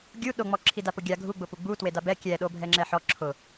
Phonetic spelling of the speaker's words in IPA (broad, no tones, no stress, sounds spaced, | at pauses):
ɡʲ u ɗ o ŋ͡m ɔ ǁʰ i d a p ʊ ɡʲ a ɡʱ u ɡ͡b ʊ p u ɡ͡b u t w e d a b ɛ kʲ ɛ ɗ o bʱ ɛ ŋ͡ǁ ɛ ħ ɔ ǁʰ ʊ